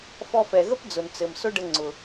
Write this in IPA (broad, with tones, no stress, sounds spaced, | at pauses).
f ɔ˧ f ɛ˨ ɣ ə˦ p d͡z ʊ˨ n t͡s ɘ˨ m s ʊ˦ ɖ ə˧ ŋ͡ǀ ʊ˨